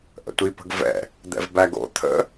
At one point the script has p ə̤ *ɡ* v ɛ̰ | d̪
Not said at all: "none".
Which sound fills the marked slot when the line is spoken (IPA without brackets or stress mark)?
ɡ